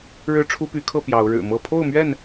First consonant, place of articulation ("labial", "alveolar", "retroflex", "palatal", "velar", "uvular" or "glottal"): retroflex